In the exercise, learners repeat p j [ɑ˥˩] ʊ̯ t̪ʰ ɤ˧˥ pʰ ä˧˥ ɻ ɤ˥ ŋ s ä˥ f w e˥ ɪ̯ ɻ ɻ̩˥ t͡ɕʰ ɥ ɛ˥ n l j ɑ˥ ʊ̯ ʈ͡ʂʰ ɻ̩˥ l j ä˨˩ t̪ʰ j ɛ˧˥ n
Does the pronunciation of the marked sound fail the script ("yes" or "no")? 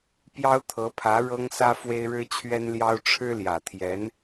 yes